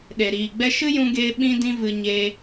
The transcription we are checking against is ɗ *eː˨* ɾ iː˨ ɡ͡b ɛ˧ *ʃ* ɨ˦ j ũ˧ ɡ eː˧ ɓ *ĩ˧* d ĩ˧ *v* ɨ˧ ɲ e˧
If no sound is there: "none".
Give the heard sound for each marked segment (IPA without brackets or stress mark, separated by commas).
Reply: e˨, ʃ, ĩ˧, v